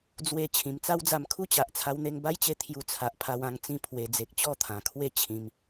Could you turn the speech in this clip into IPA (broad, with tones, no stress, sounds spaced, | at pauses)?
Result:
d͡z w e˧ t͡ɕʰ ĩ˨˩ m t͡s a˦ w d͡z a˧ m kʰ u˦ t͡ɕ a˨ ʔ t͡sʰ a˧ w n̪ e˧ ŋ b a˦ j t͡ɕ e˧ t̪ʰ j u˧ t͡sʰ a˨ ʔ pʰ a˧ w ã˧ ŋ t͡s ĩ˥˧ pʰ w e˨˩ d͡z e˨ k̚ t͡ɕ ɔ˥˧ t̪ʰ ã˨˩ kʰ w e˥˧ t͡ɕʰ ĩ˧ m